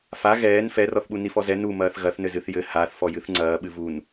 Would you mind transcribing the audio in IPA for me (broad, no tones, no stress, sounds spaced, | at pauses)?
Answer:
f a ɣ ɛː n f ɛ r ɔ θ ɓ u n i f ɔ z ɛ n u m ɐː θ ɣ ɐ θ n ɘ z ɨ θ j ɘ h a θ f ɔ j ɨ θ ŋ͡ǀ ɐː ɓ ɨ v u n